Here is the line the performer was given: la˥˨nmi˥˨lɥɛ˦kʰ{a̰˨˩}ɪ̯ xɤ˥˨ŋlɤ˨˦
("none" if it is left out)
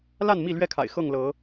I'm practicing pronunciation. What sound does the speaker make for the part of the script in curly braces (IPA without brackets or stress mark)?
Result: a̰˨˩